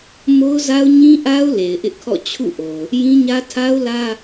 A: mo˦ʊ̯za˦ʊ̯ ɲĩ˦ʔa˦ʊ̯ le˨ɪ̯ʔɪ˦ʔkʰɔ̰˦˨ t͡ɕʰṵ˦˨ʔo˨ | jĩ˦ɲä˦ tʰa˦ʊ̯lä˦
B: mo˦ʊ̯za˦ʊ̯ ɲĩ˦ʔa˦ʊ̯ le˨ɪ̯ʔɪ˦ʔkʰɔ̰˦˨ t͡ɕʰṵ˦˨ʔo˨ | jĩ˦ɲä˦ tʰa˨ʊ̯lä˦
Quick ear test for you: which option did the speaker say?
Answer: A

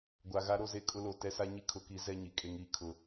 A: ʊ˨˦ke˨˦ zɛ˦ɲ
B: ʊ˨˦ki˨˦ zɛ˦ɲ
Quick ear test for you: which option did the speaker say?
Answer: B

